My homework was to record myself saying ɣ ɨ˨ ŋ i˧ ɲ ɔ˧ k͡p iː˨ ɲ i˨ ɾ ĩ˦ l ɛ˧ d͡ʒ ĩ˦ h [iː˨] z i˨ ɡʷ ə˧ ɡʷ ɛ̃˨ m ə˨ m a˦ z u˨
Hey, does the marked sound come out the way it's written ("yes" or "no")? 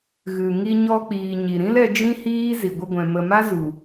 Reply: no